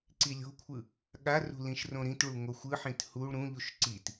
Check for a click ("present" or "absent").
present